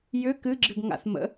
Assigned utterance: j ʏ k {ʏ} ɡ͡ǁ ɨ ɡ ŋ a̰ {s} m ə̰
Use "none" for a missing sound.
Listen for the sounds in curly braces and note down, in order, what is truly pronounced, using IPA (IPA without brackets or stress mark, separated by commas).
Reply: ɨ, θ